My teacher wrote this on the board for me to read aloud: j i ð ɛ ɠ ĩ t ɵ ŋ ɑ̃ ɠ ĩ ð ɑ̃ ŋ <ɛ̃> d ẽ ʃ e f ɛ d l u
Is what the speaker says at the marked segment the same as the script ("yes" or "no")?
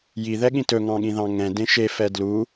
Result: yes